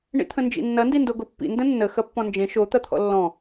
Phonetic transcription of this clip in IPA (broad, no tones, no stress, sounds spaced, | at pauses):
ɳ ḭ t̪ʰ ə̃ n d͡ʒ ḭ nː ɐ n d i n d o ɡ o pː ḭ n d ə̃ nː ə x ɐ pː ɔ̃ n d͡ʒ ẽ ʃ o t̪ ɐ t̪ʰ ɔ̰ lː ɔ̃